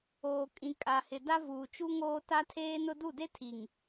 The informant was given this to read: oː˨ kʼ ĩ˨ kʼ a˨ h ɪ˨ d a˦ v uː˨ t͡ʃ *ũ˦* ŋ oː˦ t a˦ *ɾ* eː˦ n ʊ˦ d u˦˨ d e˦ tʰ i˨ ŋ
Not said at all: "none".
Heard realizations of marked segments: u˦, tʰ

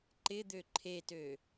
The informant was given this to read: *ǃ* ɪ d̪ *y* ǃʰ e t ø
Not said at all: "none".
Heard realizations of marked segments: ǃ, ø

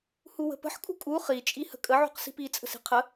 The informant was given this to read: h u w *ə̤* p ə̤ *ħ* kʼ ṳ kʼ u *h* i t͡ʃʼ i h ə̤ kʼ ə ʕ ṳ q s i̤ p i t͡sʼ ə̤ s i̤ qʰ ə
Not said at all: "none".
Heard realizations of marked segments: ə̤, ħ, χ

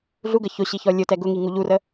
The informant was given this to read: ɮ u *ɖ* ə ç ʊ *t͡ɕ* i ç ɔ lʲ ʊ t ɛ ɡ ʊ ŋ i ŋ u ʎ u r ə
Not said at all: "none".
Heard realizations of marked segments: ɡ, ɕ

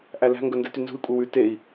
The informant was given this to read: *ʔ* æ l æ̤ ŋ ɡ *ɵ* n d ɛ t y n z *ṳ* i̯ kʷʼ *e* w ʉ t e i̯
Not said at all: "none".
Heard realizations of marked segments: ʔ, ɵ, ṳ, e

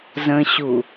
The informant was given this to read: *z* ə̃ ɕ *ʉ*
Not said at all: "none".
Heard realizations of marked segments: z, u

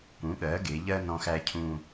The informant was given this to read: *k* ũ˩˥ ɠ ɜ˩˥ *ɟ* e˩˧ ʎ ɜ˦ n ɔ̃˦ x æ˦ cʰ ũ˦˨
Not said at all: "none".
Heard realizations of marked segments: k, ɡ

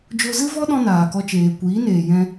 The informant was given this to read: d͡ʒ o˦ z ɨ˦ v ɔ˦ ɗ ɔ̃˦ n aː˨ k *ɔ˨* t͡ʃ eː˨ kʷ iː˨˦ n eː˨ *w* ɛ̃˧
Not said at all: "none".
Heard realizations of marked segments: ɔ˧, j

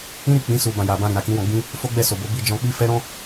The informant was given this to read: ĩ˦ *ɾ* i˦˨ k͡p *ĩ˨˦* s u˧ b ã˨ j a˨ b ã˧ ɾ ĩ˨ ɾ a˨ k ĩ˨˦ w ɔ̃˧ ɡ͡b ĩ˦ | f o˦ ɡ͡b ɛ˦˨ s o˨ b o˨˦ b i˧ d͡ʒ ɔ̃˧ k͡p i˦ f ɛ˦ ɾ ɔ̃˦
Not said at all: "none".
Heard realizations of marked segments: ɾ, ĩ˨˦

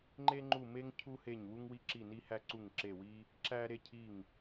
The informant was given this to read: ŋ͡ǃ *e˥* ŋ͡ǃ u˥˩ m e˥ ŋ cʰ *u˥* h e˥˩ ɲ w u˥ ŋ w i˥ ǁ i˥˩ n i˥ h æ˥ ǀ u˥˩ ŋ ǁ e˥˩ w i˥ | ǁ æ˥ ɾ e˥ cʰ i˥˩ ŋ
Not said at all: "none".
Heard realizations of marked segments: e˥, u˥

